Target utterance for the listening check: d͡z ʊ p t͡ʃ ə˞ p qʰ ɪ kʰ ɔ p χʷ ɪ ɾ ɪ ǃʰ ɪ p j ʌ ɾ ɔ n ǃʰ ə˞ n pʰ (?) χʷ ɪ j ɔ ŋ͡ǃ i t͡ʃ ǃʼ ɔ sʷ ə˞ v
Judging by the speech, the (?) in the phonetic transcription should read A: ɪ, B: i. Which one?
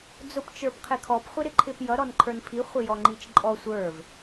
B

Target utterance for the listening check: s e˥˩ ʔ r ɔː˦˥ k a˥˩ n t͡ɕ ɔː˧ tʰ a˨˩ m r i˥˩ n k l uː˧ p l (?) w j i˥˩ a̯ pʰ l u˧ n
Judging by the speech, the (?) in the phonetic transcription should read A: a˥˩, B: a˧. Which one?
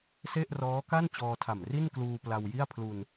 B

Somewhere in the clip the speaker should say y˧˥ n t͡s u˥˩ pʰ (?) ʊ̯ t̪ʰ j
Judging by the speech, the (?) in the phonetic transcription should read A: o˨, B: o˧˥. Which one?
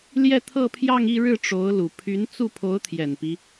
B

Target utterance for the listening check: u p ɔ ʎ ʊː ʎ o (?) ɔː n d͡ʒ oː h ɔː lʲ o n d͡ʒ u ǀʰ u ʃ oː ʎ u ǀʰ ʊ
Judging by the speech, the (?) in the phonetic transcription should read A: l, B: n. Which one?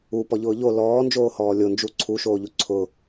A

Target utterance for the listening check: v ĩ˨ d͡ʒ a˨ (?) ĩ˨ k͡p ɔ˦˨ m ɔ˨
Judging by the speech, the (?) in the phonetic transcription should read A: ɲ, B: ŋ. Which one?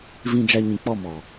A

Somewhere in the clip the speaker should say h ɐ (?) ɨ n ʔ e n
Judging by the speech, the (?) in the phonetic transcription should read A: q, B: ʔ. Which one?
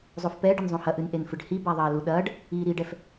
B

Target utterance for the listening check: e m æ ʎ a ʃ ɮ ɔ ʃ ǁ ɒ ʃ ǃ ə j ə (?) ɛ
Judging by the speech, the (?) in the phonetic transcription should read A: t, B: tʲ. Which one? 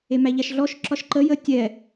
B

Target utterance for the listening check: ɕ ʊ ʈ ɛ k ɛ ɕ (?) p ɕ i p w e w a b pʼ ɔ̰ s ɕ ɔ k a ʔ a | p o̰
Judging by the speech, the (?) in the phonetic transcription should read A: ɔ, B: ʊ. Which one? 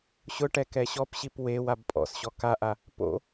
A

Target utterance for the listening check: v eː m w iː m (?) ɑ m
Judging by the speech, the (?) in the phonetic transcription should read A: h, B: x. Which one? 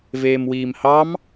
A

